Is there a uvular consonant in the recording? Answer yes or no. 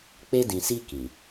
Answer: no